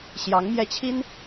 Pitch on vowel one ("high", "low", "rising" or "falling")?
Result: rising